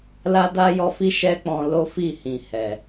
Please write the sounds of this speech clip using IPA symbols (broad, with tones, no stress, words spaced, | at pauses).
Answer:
la˦da˦jɔ˧fi˦ ʃɛ˦k͡pɔ̃˧ lo˦fi˦˨hĩ˨ hɛ˨